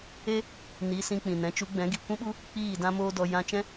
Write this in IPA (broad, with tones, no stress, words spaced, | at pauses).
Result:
e˦ | ni˨˦sĩ˧ k͡pĩ˨nɛ̃˨˦t͡ʃu˨˦ɡ͡bɛ̃˨˦ ɡi˨kʷĩ˦ɓu˦ | k͡piː˦˨dã˦moː˦dɔ˧ jã˧t͡ʃɛ̃˦